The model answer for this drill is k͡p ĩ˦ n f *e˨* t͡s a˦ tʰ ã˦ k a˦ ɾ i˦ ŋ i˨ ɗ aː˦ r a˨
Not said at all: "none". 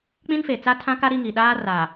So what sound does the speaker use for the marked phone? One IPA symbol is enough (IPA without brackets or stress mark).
e˨